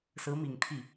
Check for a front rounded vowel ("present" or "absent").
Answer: absent